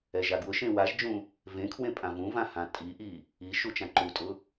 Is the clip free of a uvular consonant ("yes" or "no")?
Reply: yes